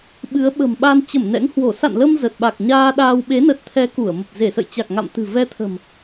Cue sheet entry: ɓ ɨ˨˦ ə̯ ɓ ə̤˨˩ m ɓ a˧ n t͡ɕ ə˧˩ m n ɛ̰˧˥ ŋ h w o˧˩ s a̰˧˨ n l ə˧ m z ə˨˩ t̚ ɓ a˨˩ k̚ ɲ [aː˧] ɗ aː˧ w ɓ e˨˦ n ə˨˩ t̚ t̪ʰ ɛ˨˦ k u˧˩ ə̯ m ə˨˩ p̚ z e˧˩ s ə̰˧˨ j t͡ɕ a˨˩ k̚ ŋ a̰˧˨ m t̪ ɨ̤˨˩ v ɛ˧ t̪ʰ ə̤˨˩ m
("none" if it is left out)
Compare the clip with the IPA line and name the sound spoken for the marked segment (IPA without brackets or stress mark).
aː˧